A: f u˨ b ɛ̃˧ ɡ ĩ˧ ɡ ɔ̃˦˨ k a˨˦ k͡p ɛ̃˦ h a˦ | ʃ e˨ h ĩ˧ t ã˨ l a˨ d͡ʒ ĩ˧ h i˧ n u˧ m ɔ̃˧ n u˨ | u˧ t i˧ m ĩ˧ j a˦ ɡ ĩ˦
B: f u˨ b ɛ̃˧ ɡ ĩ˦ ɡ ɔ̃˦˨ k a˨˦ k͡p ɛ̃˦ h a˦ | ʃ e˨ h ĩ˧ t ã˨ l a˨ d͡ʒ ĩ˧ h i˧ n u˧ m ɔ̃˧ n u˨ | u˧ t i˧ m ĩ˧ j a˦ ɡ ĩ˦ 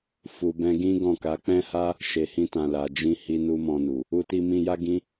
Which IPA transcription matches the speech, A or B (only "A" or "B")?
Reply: B